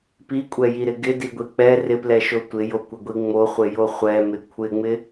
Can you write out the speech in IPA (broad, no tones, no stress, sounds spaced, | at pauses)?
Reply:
p i kʷʼ ɛ j i ɾ ɪ ɡ ɪ d i ɡʷ i k͡p ɛ r ɪ p l ɛ ʃ o tʷ ɪ j o kʷ ɪ ɡʷ i ŋ͡m o χʷ ɪ j o χʷ ɛ m ɪ kʷʰ ɪ ŋ͡m ɪ